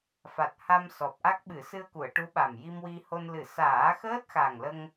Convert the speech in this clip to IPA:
f a˨˩ t̚ h a˧ m s ɔ˨˩ p̚ ʔ a˦˥ k̚ ɓ ɨ˨˩˦ s ɨ˧ ə̯ k u˨˩˨ ə̯ ʈ u˧˥ ɓ a˨˩ m j i˧ m w i˧ h o˧ n l ɨ˨˩˨ s aː˨˩˦ x əː˦˥ t̚ x a˨˩ ŋ l ə˧ ŋ

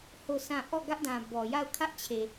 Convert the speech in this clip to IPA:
h o˦˨ s ã˦˨ ʔ ɔ˦˨ ɡ ä˦ ʔ d ã˨ b ɔ˨ j a˦˨ ʊ̯ kʰ ä˦ ʔ t͡ɕʰ e˨

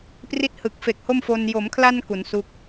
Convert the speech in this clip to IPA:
p r i˥˩ t̚ h ɯ˨˩ k̚ f e˨˩ k̚ h o˥˩ m f o˧ n j o˩˦ m kʰ l a˧ n k u˩˦ n s u˦˥ k̚

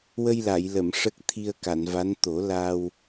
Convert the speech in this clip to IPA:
w ə˧ j l a˨˩˨ j l ə˨˩˨ m ʂ ə˦˥ k̚ t̪ʰ i˧ ə̯ k a˨˩˨ n v a˧˥ n t̪ o˨˩˦ l a˧ w

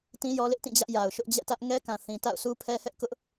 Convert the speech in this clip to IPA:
t ĩ˦ j ɔ˦ l ɪ˦ ʔ t ĩ˦˨ d͡ʑ ä˦ ʔ j a˨ ʊ̯ ʃ ʊ˦ ʔ d͡ʑ ɛ̰˦˨ t ä˦ ʔ ŋ ɛ˦ k ã˨ θ ĩ˨ t a̰˦˨ ʊ̯ sʰ u˦ pʰ ɛ˦ h ɛ˦ ʔ k ʊ˦ ʔ

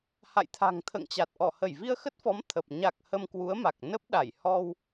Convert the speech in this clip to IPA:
h a̰˧˨ j t̪ʰ a̤˨˩ ŋ t̪ʰ ə̰ː˧˨ ŋ t͡ɕ a˨˩ t̚ ʔ ɔ˧˩ h ə˧˩ j v i˧ ə̯ x ə˦˥ t̚ f ɔ˨˦ m t̪ʰ ə˨˩ p̚ ɲ a˨˩ k̚ h ə˧ m k w u˨˦ ə̯ m a˨˩ k̚ n ə˦˥ p̚ ɗ a˧˩ j h ɔ˧ w

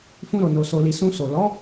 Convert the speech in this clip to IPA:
f ũ˧ ɾ o˨ n o˨ s o˨ l i˨ s ũ˧ s o˨ l ɔ˨˦

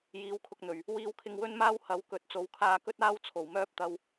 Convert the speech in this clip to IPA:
j iː˨˥ w kʰ ʊ˨ k̚ n̪ ɵ˨˩ ɥ | w iː˧ w kʰ ɪ˧ ŋ w ɵ˥ n m aː˥ w h ɐ˨˥ w k ɵ˨˥ t̚ t͡s o˨˥ w kʰ aː˧ k ɵ˥ t̚ aː˥ w t͡sʰ o˨˩ w m œː˥ p̚ t̪ ɐ˧ w

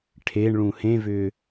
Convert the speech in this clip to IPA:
ʈʰ e ɳ ɭ ũ h ẽ v ʏː

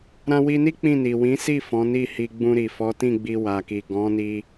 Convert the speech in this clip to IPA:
ɾ ã˦ w i˧ n i˦ k͡p ĩ˦˨ n i˨ w ĩ˨˦ s i˦˨ f ɔ̃˨˦ n i˦˨ h i˧ ɡ͡b ũ˧ ɾ i˨ f ɔ˨˦ t ĩ˦˨ ɡ͡b i˧ w a˨ k i˨ ɡ ɔ̃˨˦ n i˧

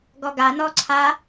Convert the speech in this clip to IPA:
ɡ ɔ ɡ a n ɔː ǀʰ a

